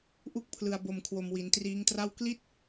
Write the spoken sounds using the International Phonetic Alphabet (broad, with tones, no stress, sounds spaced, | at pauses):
ʔ u˥˩ k̚ pʰ l ɯ˧ a̯ b o˧ m kʰ w o˧ m w i˧ n t r iː˦˥ ŋ t r a˥˩ w k l i˥˩ t̚